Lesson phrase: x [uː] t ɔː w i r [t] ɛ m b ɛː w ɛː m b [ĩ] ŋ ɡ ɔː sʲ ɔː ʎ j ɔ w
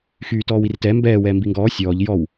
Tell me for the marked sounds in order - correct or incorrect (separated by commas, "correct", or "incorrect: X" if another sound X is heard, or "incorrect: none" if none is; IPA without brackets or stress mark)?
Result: incorrect: yː, correct, incorrect: i